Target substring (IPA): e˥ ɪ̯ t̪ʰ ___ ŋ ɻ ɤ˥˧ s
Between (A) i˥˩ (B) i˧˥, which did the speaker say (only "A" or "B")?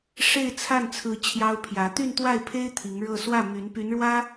B